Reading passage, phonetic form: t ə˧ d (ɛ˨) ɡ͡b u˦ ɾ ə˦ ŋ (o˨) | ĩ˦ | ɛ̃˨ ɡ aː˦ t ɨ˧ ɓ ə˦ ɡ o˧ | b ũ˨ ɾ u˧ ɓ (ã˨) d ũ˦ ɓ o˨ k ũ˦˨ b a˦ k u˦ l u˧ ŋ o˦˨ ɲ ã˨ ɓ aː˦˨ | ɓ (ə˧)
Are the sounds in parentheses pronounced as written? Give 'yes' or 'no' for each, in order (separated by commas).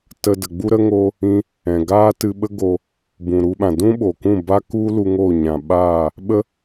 no, no, yes, no